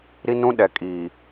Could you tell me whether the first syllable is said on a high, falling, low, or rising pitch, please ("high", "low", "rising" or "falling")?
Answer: high